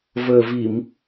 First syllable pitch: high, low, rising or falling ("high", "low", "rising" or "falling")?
low